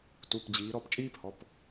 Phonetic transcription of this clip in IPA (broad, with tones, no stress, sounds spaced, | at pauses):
t u˩˧˩ p d͡ʑ iː˩˧ ɾ ɔ˦˨ p t͡ʃʼ iː˥ p h ɔ˩˧˩ p